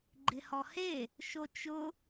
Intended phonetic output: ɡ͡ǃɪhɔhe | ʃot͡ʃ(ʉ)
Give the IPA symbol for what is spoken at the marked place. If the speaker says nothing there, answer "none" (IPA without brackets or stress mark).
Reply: ʊ